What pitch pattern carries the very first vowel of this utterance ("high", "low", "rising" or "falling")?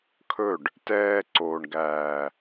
falling